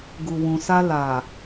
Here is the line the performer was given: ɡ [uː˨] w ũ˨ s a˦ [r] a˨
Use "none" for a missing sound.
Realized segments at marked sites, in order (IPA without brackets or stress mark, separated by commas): u˨, l